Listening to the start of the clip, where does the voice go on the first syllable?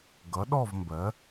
rising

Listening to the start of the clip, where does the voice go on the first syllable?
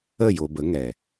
falling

